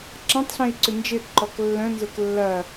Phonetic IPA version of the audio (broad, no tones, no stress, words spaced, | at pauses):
ǁɐ̃tˤɬẽi̯ ǀʏnd͡ʒɪǃɔk lːœ̃nzʊk lːɐ